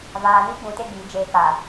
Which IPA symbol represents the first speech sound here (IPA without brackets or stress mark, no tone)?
v